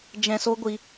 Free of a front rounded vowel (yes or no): yes